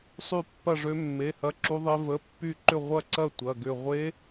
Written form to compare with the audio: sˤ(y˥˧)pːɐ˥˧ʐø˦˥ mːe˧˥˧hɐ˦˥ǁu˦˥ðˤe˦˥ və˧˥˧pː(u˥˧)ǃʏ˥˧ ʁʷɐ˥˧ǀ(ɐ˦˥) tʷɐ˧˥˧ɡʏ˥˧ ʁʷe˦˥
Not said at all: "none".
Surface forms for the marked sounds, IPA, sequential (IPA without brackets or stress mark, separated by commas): y˥˧, y˥˧, ɐ˥˧